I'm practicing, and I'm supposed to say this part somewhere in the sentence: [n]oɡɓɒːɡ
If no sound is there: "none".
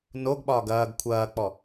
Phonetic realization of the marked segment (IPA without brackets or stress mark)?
n